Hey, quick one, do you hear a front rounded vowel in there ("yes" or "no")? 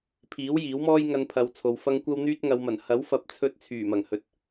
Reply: yes